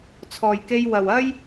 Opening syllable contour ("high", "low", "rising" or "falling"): low